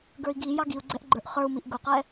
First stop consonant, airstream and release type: plain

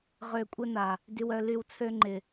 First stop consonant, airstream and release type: ejective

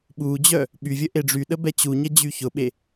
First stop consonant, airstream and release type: implosive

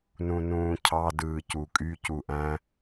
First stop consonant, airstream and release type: aspirated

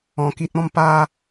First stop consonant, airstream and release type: plain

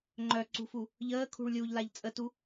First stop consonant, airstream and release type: click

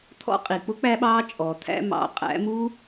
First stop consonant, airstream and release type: aspirated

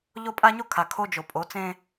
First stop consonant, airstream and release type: ejective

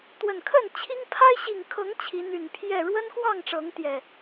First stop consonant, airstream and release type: plain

